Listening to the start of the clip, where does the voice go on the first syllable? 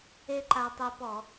high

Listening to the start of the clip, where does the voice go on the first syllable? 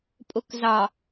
low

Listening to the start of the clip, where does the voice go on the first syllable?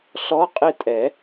rising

